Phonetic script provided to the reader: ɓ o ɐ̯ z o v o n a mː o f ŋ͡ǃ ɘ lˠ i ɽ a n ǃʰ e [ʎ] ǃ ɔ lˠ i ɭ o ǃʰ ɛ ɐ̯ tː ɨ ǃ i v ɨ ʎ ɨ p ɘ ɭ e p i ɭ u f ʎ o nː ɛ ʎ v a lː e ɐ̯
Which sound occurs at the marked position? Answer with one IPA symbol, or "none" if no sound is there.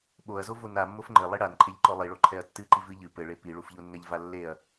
ʎ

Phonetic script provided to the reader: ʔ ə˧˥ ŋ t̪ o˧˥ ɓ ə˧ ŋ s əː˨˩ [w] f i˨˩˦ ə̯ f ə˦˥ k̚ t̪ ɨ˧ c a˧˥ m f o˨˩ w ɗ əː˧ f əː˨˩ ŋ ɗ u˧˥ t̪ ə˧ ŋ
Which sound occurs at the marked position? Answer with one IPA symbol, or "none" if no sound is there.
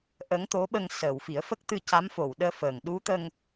w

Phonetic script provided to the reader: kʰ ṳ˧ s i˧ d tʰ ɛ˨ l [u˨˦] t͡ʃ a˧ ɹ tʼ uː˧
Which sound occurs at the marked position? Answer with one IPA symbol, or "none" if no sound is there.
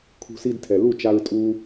u˦˨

